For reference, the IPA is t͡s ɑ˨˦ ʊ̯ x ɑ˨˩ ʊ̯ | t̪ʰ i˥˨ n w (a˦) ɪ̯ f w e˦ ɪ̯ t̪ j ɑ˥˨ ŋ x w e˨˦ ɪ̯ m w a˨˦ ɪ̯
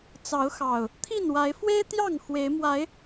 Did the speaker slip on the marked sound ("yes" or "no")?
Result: yes